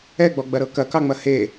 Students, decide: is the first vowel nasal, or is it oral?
oral